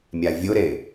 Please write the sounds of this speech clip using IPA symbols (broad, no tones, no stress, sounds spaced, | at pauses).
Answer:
mʲ a vʲ ʊ ɾ e